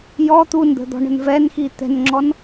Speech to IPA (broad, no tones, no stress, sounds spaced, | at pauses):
j ɔ t̪ u n d̪ ə̤ d̪ ɔ̤ ɳ ə̤ n v ɛ n x i t̪ ɛ̤ n ŋ͡ǁ ɔ n